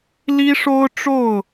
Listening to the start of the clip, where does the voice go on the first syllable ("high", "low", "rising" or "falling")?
high